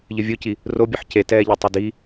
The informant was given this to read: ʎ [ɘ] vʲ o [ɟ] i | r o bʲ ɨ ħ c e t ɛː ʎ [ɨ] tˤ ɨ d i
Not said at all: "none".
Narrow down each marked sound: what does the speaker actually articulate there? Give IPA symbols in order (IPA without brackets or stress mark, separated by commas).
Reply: ɘ, c, ɛ